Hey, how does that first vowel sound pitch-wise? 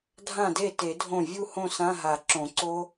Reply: falling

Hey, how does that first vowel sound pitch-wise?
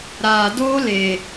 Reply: low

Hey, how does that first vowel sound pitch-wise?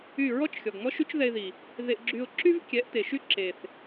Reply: falling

